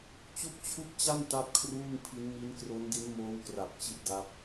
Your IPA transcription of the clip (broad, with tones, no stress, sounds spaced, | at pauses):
t͡ɕ u˥˩ k̚ t͡ɕʰ u˥˩ k̚ t͡ɕ a˥˩ n t a˥˩ p̚ kʰ r uː˥˩ ŋ pʰ i˦˥ n m i˦˥ n k r o˦˥ n d i˦˥ n m oː˦˥ w k r a˨˩ p̚ t͡ɕ i˦˥ t̚ d a˦˥ p̚